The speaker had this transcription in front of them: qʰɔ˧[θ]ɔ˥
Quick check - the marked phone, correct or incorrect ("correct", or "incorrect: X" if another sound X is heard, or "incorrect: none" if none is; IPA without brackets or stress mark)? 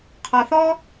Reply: correct